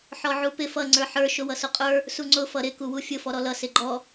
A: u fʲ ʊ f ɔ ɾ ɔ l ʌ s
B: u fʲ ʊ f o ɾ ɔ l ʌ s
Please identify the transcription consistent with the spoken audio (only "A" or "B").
A